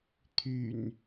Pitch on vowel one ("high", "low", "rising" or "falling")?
low